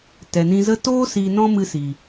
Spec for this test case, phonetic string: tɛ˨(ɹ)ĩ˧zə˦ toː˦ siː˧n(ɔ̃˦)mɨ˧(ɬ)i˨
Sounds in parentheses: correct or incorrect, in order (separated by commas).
incorrect, correct, incorrect